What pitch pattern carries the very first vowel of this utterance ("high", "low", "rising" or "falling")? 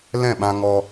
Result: falling